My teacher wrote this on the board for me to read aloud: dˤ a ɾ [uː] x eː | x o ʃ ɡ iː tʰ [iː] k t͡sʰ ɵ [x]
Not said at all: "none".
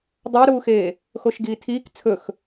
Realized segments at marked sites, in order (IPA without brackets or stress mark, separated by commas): uː, iː, x